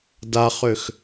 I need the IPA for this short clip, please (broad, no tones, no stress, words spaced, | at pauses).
daχøx